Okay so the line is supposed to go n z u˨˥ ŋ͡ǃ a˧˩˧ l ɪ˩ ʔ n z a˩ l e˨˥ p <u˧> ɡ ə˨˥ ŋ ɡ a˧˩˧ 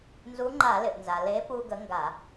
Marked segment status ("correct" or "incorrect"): correct